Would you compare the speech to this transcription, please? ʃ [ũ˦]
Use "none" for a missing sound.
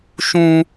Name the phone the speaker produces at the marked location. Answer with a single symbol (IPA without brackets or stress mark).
ũ˦